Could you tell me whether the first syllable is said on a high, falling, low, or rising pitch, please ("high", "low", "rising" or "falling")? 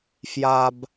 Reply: low